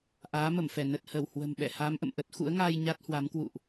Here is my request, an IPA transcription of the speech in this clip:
ʔ aː˨˦ m ə˧˩ m f ɛ˧˩ n ə˨˩ t̚ h ə˧˩ w h w ə̤˨˩ m ɓ ɛ̰˧˨ h aː˨˦ m ʔ ə̰˧˨ m ʔ ə˦˥ t̚ x ṵ˧˥ ə̯ ŋ aː˧ j ɲ a˦˥ t̚ h w a˨˦ m k w ṵ˧˨ ʔ

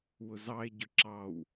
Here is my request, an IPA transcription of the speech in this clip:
w ʊ z ɑ e̯ ɟ ʊ ǁ ɑ w

